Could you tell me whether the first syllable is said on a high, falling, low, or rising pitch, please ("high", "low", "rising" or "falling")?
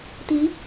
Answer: rising